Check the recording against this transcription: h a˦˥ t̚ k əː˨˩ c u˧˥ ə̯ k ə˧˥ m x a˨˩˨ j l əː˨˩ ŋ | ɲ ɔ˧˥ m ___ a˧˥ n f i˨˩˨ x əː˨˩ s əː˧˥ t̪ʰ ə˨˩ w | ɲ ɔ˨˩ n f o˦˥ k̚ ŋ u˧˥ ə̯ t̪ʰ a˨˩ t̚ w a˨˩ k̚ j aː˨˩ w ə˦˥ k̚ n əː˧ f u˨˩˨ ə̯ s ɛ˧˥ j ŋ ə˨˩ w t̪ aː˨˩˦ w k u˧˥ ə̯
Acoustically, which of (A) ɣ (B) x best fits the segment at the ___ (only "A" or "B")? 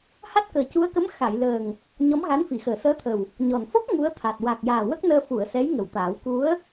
A